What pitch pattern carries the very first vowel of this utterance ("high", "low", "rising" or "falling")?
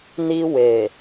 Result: high